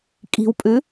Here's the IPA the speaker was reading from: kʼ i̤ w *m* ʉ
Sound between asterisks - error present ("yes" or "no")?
yes